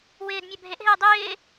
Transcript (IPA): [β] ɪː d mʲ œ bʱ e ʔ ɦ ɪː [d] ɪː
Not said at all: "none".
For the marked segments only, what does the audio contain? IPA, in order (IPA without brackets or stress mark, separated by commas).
w, dˤ